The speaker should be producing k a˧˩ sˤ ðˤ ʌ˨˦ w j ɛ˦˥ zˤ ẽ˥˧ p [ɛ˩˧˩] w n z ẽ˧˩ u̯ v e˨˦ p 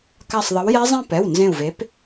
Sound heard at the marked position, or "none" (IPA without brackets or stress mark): ɛ˩˧˩